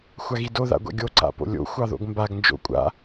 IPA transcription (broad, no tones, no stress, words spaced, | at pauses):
xʷaɣido ða̰ɡʷa̰ɡʲo ǀa̰po̰lʲo̰ xʷɑðo̰ɡmbaɡ nd͡ʒo̰kʷʼa̰